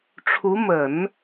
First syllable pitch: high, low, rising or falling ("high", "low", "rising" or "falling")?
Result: rising